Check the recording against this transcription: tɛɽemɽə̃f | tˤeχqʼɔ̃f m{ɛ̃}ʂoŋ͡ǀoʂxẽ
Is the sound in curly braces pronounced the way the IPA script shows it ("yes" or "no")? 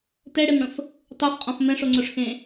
yes